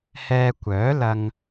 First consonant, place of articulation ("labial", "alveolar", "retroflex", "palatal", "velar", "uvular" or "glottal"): glottal